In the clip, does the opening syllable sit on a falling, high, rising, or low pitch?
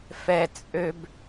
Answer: low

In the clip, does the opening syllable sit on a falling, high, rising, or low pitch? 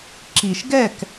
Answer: low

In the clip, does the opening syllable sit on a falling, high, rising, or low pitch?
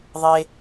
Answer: high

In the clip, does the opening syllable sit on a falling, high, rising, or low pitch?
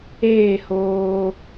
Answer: falling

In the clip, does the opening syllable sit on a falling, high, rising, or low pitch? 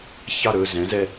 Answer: falling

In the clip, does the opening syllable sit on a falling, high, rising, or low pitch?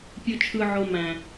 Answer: low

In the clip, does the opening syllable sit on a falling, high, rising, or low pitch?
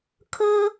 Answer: high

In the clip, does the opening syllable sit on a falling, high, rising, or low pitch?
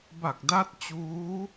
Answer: low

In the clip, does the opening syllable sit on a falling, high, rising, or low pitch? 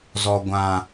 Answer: high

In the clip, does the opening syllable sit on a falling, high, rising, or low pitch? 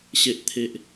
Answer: low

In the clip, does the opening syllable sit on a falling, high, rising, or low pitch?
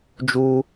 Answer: high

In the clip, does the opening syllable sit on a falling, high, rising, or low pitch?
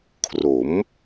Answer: rising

